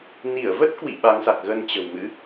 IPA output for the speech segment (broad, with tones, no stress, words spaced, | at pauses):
ni˧˩ə̯və˦˥t̚kwḭ˧˨ ɓa˨˦ŋsa˨˩k̚ɣə˧n t͡ɕə̤˨˩wmɨ̰˧˥